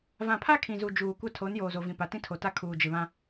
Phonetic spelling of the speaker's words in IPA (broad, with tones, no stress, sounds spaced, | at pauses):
v ã˨ pʰ a˦ kʰ ĩ˨ z u˨ d͡ʒ uː˨ kʷ a˦ tʰ o˨˦ n j oː˨ z o˨ v ĩ˨ p a˨ t ĩ˦ tʰ o˨ t a˦ kʰ uː˨ d͡ʒ ɪ˨ β ã˦